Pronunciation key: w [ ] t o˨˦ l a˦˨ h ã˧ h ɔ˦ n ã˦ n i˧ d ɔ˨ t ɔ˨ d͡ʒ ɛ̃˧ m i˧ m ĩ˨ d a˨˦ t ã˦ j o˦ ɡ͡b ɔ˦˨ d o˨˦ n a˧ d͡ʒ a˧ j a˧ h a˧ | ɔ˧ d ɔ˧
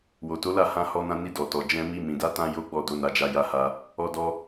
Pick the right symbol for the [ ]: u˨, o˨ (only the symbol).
o˨